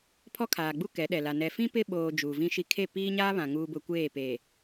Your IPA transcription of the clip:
pʰ ɔ˦ kʰ aː˨ ɡ͡b u˦ k ɛ˨˦ ɗ ɛ˨ l a˨ n ɛ˨ f ĩ˦ p ɪ˦ ɓ oː˨ d͡ʒ uː˨ v ĩ˦ ʃ i˦ kʰ e˦˨ p iː˦ ɲ aː˦ β ã˨ ŋ uː˨ b ʊ˨ kʷ eː˦˨ p e˨

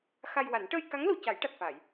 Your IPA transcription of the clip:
x a˧ j w a˨˩˦ n ʈ əː˧ j k a˧˥ ŋ l o˨˩˨ c a˨˩˦ j ʈ a˨˩ t̚ f a˨˩˨ j

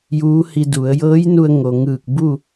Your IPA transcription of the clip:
j uː˧˥ h i˧ d u˩˧ ə̯ j ɤː˧˥ j n u˧ ə̯ ŋ o˩ ŋ ɯː˧˩ k̚ b u˥˨

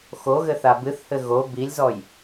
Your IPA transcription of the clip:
x o ɣ ɘ θ a b ɨ θ h ɘ ɣ o b i lʲ z ɔ j

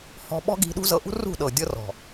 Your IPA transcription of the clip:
h ɔ̤˧ ɓ ɔ̤˦ ɡ i̤˧ ɗ ṳ˦ z ɤ˧ ʔ ṳ˦ r ṳ˦˨ ɗ ɤ˨ dʲ ɤ˧ r ɔ̤˨

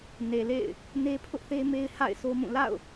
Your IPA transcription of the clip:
n e˨ l ḛ˦˨ ɪ̯ | n e˦ pʰ ʊ˦ ʔ θ e˦ m e˦ ɪ̯ h a̰˦˨ ɪ̯ sʰ o˦ m ũ˦˨ l a̰˦˨ ʊ̯

